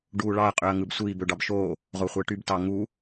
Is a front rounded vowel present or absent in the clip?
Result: present